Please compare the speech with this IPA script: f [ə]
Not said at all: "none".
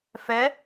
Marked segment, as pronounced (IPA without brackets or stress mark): ɛ